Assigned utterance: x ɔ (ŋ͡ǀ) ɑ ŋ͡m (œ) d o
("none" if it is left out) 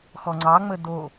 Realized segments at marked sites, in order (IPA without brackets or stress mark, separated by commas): ŋ͡ǀ, ə